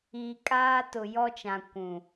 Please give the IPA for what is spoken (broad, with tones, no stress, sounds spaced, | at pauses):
i˨ kʼ aː˦ t ʊ˨ j ɔ˦ t͡ʃ ã˨ kʷ ũ˨